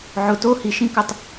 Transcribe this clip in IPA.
ʕʊ˨to˦ hi˨ʃĩ˦ kə˦tˤ

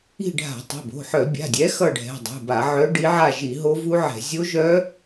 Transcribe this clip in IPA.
i̤˦˨ɖʱa̤˧˩˧ tˤo̤˩˧˩bo̤˩˧˩ħœ˧˩˧ bʲa̤˩˧˩dʲɛ˨˦ xʌ˦˨ɖʱɛ̤˩˧˩ dˤṳ˩˧˩ba˧˩˧ ʕœ˨˦ ɖi˨˦ʕa˦˨ ʒi˧˩˧ ɦo˦˥vu˦˥ʕɛ̤˧˩˧ zʲo˦˥ʒœ˦˥

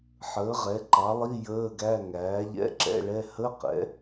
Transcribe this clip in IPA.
ħəː˩˥ ʁɛ˩˥ ǃɑ˩˥lˠi˧˥˧ jəː˧˥˧ɡæ˧˥˧ ŋæː˩˥ʎɛ̰˧˥˧ǁɛ̰˧˥˧ɭɛ˧˥˧ hə˧˥˧qɛ̰˩˥

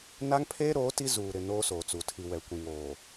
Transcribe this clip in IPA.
na˦ŋpʰeː˦ ɾoː˨˦ ti˦ zuː˨ ɾɪ˨ noː˦soː˨t͡su˨ tʰi˨wɛ˨ kʷĩ˨ŋoː˨

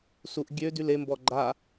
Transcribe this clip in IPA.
suʔ ɡʲø dylembɔ ɡ͡ǃa

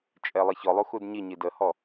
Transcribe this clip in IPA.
t͡ʃʼɛlˠiçɔlˠu xudɲiɲi dəhɔ

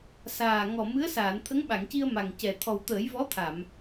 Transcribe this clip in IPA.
saː˨˩ŋɔ˨˩ mɨ˧˥ə̯ saː˨˩˨nt̪ʰə˧˥ŋɓa˨˩˨ŋci˧ə̯ ma˨˩ŋcɛ˨˩ t̪ʰɔ˨˩wt̪əː˨˩˦jvɔ˧˥t̪ʰa˨˩˨m

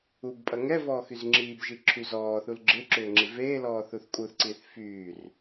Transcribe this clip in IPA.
ubpʼɐ ŋɛvɔː xyzŋ͡ǁiːbʒi ǁʰyzɔːθul ɡ͡ǁɪ ǁʏːŋ͡ǁiveːlɔː θuθkʼuθǀiːθ fyːr

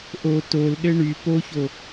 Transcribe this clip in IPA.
ʔo tolɗɘ ɳy poço

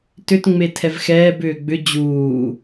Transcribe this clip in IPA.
tʏtŋ͡metʰɛv xɛːbʏː ɡ͡bʏ d͡ʑuː

